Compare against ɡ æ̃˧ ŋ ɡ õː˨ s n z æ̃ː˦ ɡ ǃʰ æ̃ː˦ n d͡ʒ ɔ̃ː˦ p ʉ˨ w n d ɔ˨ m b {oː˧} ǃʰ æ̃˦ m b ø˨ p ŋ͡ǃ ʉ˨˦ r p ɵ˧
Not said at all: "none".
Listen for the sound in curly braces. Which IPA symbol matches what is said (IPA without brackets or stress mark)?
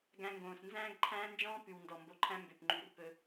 o˧